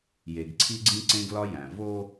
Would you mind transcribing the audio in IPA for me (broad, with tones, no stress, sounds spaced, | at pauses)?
j e˨ ɡ ǀʰ i˦ ɡ͡ǀ ĩ˦ ǀ ẽ˦ ɡ l ɒ˦ j æ̃˨ v o˦